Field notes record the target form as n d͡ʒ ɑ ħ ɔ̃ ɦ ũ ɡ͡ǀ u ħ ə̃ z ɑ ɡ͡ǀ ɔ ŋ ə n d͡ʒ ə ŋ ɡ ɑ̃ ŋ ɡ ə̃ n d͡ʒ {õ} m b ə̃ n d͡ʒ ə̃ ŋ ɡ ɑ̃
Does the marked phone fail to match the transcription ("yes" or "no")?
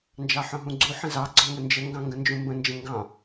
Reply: yes